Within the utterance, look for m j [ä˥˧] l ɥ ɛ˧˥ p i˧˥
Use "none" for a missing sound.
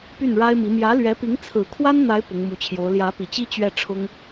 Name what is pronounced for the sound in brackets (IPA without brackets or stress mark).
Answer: ä˧˥